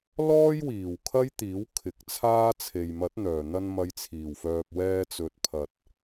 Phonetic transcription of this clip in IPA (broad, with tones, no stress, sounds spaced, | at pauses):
l ɔː˥ j w iː˨˩ w kʰ ɐ˥ j t̪ iː˨˥ w kʰ ɪ˨˥ k̚ t͡sʰ aː˥ t͡sʰ e˨ j m ɐ˨˥ t̚ n̪ œː˨˩ n̪ ɐ˧ n m ɐ˨˧ j t͡sʰ iː˨˩ w f œː˨ p̚ w ɛː˧ t͡s ɵ˨ t̚ pʰ ɐ˨ t̚